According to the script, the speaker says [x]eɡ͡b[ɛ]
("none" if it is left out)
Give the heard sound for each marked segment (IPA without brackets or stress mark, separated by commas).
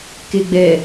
k, ɛ